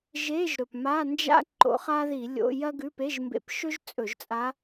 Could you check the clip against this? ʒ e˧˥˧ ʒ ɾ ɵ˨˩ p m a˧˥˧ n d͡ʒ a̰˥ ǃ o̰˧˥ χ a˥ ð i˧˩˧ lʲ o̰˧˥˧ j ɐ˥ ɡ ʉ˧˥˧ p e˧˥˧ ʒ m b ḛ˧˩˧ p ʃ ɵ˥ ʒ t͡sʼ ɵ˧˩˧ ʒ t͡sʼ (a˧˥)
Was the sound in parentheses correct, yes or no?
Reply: yes